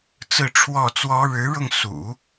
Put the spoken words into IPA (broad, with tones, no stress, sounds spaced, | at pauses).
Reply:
t͡s ɹ̩˥˧ ʈ͡ʂʰ w ɔ˥˩ t͡s w ɔ˥ ɻ ɻ̩˧˥ ɻ ʊ˧ ŋ s ṵ˨˩˦